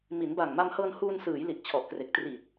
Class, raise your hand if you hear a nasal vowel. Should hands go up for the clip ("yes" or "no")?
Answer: no